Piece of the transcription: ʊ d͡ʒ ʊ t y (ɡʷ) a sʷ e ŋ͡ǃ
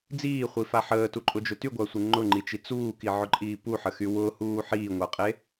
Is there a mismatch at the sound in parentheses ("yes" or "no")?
no